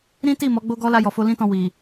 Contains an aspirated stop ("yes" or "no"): no